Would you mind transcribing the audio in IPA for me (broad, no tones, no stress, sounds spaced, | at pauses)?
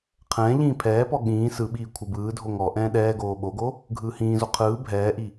qʰ ɛ̃ː ʎ ĩː pʰ ɛː p ɔ ɠ ĩː s ɯ ɓ iː kʷʰ ɯ b ɯː dʱ o ŋ ɔ ʔ ɛ̃ː ɗ ɛː ɡ oː ɓ o ɡ o | ɡʱ ɯː h ĩː z o qʰ ɯː bʱ ɛː ʔ i